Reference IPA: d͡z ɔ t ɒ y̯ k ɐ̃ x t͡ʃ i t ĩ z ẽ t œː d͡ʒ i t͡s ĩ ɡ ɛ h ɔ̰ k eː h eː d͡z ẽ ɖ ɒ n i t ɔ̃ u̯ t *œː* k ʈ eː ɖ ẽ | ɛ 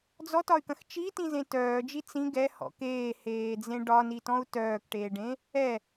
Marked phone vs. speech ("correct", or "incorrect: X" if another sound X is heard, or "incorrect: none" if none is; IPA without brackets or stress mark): correct